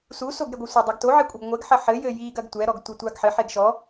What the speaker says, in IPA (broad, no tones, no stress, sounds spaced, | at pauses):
s u s o ɡ ɾ e ɡʷ ɨ sʷ ɐ dˤ ɛ ɡ t o ʕ e kʷʼ ɐ ɡ ŋʷ ɛ ɡ ħ ɐ ħ ɘ j ɘ j i ɡ ɐ ɡ tʷ ɛ ɾ ɔ ɡ tʷ ɐ tʷ a ɡ ħ ɘ ħ e ɡ ʃ ɔ